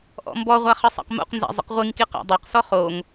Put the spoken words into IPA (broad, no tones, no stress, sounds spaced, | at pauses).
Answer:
ʔ ɔ̰ m b ɔ ʁʷ a χ ə sˤ a̰ q m o̰ q n z a̰ zˤ ə̰ q ʁʷ i ŋ k i q a̰ dˤ o q s ɔ χ o ŋ